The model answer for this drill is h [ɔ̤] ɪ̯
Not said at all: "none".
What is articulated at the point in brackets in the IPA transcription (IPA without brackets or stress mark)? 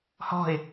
ɔ̤